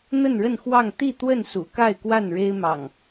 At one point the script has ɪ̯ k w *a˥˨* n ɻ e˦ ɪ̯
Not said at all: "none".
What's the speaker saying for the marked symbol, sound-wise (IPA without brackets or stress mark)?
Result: a˥˨